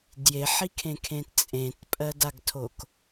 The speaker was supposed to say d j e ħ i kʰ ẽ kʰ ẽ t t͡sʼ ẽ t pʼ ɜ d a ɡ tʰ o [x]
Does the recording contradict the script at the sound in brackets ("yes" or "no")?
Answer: yes